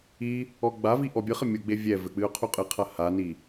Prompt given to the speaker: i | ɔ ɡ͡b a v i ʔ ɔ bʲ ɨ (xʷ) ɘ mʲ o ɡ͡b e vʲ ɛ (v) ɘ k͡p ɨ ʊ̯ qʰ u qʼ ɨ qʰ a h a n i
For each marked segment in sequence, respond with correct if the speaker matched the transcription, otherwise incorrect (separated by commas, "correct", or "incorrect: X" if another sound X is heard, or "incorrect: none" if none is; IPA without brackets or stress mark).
incorrect: χ, correct